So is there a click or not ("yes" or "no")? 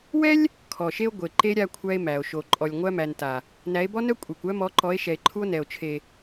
yes